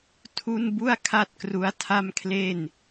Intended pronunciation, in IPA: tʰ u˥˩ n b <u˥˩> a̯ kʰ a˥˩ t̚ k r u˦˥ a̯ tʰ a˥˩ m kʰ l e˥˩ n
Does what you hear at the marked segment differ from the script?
no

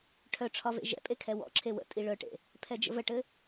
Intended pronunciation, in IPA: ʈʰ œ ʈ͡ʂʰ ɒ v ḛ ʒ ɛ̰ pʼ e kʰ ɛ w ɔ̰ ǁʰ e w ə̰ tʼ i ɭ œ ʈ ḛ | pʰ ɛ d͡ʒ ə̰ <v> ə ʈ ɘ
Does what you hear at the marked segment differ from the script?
no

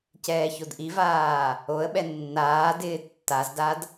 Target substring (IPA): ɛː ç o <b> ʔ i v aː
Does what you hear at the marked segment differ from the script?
yes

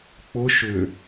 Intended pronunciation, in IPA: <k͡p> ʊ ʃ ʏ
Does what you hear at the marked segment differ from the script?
no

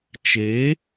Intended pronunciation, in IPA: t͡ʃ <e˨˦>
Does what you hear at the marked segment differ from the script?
no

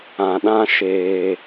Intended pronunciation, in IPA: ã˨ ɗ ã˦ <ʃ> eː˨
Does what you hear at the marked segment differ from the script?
no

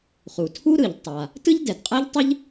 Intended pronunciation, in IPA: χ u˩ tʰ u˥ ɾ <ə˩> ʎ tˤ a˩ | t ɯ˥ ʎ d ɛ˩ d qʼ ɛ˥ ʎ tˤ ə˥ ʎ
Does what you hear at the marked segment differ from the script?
yes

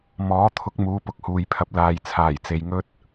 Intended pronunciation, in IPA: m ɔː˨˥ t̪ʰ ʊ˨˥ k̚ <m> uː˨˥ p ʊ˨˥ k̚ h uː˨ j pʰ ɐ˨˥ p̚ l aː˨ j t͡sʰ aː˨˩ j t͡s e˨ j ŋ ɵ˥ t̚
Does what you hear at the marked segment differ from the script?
no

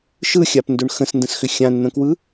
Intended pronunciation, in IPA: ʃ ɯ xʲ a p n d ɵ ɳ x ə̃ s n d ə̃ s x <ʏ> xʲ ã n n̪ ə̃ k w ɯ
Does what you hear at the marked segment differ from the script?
no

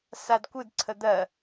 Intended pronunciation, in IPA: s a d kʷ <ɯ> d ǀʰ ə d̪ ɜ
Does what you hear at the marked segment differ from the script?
no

